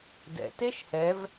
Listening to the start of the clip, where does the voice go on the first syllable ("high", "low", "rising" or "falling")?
low